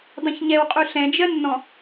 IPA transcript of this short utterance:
dˤ ɛ̃ ç ɲ ɛ w qʼ u ɬ ɛ̃ d͡ʒ ɜ nː ɔ̃

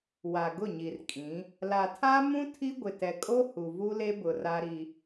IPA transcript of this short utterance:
w a˨ ɡ ʊ˦˨ ɲ i˨ r kʼ ĩ˨˦ | l a˨ tʰ a˦ m ũ˦ tʰ i˦ ɡʷ ɪ˨ t ɛ˨ kʼ o˦ h u˨ v u˦ l e˦ b ʊ˨ r a˦ ɾ i˦

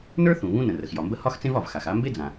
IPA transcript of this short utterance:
n ə˞˥ θ ũ˩ β ũ˥ n ə̃˩ r ə˩ x j ɒ˩ m b ə˥ h ɒ˥ x t͡s ẽ˥ v ɒ˩ v x a˩ x a˥ m b e˥ d͡z ã˩

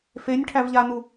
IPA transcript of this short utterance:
f e nʲ ʈʰ æ v ʎ a n u

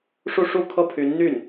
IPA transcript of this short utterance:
ʂ u˥˧ ʂ u˥˩ kʰ ɤ˥ pʰ y˧˥ n n̪ y˥˩ n

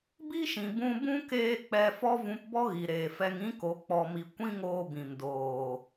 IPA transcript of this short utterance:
b i˦ ʃ ĩ˨ b ũ˧ b ũ˦ k eː˧ k͡p ɛ˧ f ɔ˦ v ũ˧ p b ɔ˦ ɣ i˨ ɾ eː˨ f ɛ˧ ŋ ĩ˦ k o˨˦ k͡p ɔ˨ m i˨ kʷ ĩ˦ ŋ oː˧ b ĩ˨ m d oː˨

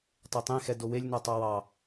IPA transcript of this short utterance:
tˤ e tˤ ẽ x ɛ d o w e lʲ n ɔ tˤ ɑ w ɑ

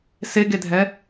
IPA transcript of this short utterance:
s e ɡ e dʱ ɛ

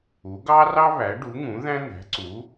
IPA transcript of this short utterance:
u˨˥ ɡ ɑ˥ r ɑ˥ β æ˨˥ ɖ u˨˥ ŋ ũ˨˥ ð æ̃˥ n̪ æ̤˨˥ ǀ u˨˥

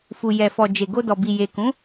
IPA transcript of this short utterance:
f u˨ j ɛ˨ f ɔ˨ d͡ʒ e˨ ɡ o˧ d ɔ˨ b i˨ j e˨ k ũ˨˦

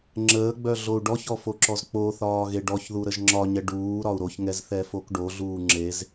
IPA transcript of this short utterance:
ŋ͡ǁ əː ɡ͡b œ ɮ o u̯ ɖ ɔ ç ɔ f o ǁ ɔ z k͡p o θ ɒː ɣ e ɖ ɔ ç ð u ɾ ə ʒ ŋ͡ǁ ɒ ɲ ɛ ɖ uː ɾ ɒ u̯ ɾ o ç ŋ ɛ z θ ɛ f o k ɖ o ɮ uː ŋ͡ǁ e z

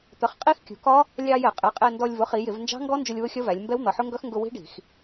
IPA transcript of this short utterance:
t̪ ə˩˧ χ qʼ i˦˥ x kʲ ṳ˩˧ k ɒ˦˥ | lʲ ɑ˧ j ɛ˧˩˧ qʼ ɛ˩˥ qʼ ɛ˧ n d ɔ˧ lʲ v ʊ˩˥ χ i˩˧ j ɪ˧˩˧ v n d͡ʒ ɑ̤˦˥ ŋ ɡ ɔ˦˥ n d͡ʒ ʊ˧ lʲ w ʊ˦˥ xʲ ʌ˦˥ v æ˩˧ lʲ m b ɛ˦˥ w n̪ ʌ˩˧ ħ ʊ˦˥ ŋ ɡ ʌ˦˥ x ŋ ɡ ʊ˧ w i̤˦˥ ɖ i̤˧˩˧ x

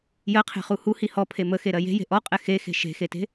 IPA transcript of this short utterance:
j ɜ qʰ e̤ χ u h u h i h ɔ pʰ e m ə x e ɾ ɜ j e̤ j e̤ ʔ ɔ qʼ ɛ x e x e̤ ʃ e̤ x e t e̤

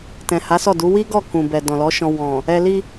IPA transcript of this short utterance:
t ɛ̃˨ h a˨˦ s ɔ˦˨ d u˨˦ w i˦ ɡ ɔ˦˨ k ũ˨ b ɛ˨ d ɔ̃˨ l ɔ˨˦ ʃ ɔ̃˧ w ɔ̃˨ | ɛ˧ l i˧

